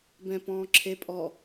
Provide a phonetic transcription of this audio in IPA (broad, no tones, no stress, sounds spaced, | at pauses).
b ɛ̃ p ɔ̃ː ǁʰ e pʼ ɔ